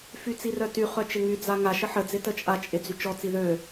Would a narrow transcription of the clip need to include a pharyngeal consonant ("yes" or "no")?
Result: yes